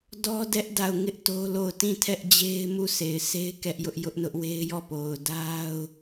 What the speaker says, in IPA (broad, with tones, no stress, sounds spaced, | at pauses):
d ɔ˦ d ɛ˦ ʔ d a˦˨ ʊ̯ ŋ ɪ˦ ʔ t o˦ l o˦˨ ʊ̯ t ĩ˦˨ tʰ ɛ˦ ʔ d͡ʑ e˦ ɪ̯ m u˦˨ sʰ e˨ ɪ̯ sʰ e˦ ɪ̯ k ɛ˦ ʔ j ʊ˦ ʔ j ʊ˦ ʔ n ʊ˦ ʔ w e˦ ɪ̯ j ɔ˦˨ p o˨ ʊ̯ d a˦ ʊ̯